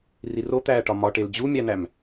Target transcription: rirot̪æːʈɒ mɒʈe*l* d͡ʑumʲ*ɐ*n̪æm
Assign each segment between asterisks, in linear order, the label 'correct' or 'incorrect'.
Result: correct, incorrect

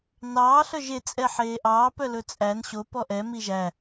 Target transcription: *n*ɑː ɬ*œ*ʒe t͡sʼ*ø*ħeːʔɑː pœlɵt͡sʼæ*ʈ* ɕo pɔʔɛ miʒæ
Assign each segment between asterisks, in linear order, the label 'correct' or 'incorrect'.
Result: correct, correct, incorrect, incorrect

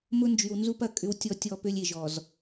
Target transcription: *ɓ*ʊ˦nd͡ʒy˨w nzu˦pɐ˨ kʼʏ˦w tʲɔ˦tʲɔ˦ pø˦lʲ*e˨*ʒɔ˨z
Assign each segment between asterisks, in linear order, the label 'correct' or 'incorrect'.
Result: incorrect, correct

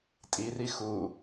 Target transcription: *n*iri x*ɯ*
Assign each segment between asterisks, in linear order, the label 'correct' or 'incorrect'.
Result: incorrect, incorrect

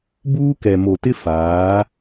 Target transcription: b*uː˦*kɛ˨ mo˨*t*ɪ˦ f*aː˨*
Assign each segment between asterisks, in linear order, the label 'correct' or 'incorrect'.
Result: correct, correct, incorrect

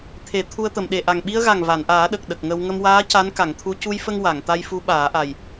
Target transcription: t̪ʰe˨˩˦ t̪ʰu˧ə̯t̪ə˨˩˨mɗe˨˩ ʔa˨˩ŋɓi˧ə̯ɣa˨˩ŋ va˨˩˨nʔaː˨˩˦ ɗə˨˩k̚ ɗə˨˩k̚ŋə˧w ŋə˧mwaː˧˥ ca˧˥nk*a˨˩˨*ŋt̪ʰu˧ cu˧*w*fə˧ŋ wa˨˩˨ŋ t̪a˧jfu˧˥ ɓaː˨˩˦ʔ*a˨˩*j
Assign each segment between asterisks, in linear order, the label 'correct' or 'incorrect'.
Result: correct, incorrect, correct

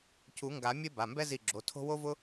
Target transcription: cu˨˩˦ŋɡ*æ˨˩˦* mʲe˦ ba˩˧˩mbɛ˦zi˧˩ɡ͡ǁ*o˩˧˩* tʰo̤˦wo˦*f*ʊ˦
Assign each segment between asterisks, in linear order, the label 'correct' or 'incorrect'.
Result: incorrect, correct, incorrect

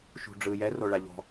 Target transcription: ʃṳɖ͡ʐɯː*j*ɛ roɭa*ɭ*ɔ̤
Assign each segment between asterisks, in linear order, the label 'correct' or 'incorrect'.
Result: correct, incorrect

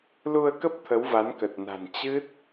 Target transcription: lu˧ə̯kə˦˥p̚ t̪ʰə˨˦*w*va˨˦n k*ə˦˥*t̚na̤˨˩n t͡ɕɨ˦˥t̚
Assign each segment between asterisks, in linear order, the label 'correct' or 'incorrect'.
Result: correct, incorrect

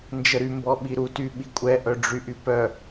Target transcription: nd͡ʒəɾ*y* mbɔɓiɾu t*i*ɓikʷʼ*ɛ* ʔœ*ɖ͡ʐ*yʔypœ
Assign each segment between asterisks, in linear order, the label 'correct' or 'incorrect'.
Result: correct, incorrect, correct, correct

